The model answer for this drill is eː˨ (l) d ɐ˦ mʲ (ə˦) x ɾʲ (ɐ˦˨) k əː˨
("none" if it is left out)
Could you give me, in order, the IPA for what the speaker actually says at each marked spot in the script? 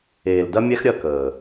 l, ɛ˦, ɐ˦˨

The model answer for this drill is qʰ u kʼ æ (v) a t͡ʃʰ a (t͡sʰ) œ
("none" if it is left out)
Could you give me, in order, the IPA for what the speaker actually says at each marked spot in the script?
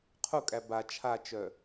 b, t͡ʃ

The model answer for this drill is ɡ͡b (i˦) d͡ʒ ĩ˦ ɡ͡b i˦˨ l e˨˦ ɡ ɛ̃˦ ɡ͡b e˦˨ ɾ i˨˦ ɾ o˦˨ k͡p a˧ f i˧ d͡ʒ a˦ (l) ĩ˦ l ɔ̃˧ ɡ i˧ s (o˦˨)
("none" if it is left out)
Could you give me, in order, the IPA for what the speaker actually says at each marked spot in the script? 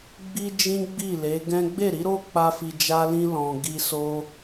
i˦, l, o˦

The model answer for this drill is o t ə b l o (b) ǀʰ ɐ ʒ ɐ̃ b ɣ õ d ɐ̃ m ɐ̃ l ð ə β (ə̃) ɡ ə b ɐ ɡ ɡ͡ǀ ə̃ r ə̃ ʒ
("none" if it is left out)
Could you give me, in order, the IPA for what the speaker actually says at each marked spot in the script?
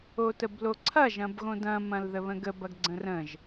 none, ə̃

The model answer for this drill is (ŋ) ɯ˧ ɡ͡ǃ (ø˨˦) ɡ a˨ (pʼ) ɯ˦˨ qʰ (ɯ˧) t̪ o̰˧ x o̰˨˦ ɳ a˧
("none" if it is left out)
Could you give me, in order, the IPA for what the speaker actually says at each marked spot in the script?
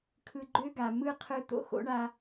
kʰ, ø˦, m, ɯ˧

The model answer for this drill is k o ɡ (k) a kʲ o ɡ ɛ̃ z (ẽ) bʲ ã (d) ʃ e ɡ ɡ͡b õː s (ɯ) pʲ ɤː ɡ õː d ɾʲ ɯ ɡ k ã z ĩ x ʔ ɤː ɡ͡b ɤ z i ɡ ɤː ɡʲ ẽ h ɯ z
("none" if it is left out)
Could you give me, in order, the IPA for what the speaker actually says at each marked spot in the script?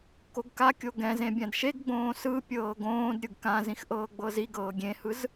k, ẽ, d, ɯ

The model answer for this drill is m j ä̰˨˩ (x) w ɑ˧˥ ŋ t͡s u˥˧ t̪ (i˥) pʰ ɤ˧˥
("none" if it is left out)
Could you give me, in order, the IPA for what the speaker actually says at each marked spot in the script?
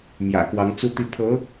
k, i˥˩

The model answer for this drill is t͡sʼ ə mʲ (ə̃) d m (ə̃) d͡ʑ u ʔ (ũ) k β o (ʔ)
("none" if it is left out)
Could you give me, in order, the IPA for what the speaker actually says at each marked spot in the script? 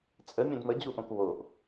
ə̃, ə, õ, ʔ

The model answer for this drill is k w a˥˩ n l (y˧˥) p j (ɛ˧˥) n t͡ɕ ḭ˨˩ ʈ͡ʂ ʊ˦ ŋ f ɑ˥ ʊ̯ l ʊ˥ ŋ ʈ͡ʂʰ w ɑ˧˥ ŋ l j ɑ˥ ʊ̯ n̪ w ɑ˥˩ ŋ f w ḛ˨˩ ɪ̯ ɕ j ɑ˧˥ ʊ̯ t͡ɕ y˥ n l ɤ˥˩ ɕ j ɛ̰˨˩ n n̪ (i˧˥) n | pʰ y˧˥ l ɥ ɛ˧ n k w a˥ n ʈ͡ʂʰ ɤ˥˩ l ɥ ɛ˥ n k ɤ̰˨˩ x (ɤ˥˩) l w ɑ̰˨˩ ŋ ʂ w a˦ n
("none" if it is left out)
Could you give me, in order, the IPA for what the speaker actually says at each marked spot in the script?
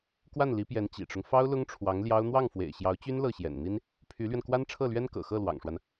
i˧˥, ɛ˧˥, i˥, ɤ˥˩

